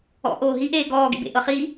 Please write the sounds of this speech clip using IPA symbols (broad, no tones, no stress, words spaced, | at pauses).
ɔ̰ʔoː ɦiʔeː ɡɔːɡḛbḛ ʔɤχi